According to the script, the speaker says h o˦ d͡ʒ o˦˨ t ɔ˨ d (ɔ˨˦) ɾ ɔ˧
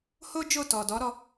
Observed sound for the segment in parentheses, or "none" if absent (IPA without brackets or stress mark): ɔ˨˦